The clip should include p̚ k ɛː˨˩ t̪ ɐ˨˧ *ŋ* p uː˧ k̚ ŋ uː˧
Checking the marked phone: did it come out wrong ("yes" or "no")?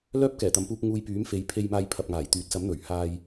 yes